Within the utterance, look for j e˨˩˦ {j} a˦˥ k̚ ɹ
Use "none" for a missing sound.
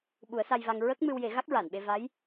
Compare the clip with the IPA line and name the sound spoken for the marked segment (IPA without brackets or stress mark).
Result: ɣ